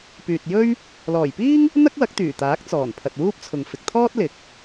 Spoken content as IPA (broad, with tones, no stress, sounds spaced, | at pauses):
p yː˨ t̚ j ɵ˥ ɥ | l ɔː˨˩ j p iː˥ ŋ | n̪ ɐ˥ k̚ w ɐ˨˥ k̚ t̪ yː˨˩ t̪ aː˨˥ k̚ t͡s ɔː˨˩ n pʰ ɐ˨ t̚ w uː˥ p̚ t͡sʰ ʊ˨ ŋ f ɪ˨ k̚ t̪ʰ ɔː˥ t̚ l ɪ˨˥ k̚